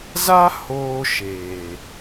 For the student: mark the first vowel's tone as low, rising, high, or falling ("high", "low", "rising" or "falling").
high